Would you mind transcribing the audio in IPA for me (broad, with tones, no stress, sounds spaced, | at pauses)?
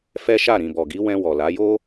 f ɛ˦ ʃ a˦˨ ɾ ĩ˨ b ɔ˨ ɡ i˨˦ w ɛ̃˧ w ɔ˨ l a˨˦ j o˦